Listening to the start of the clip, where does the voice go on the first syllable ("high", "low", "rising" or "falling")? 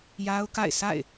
high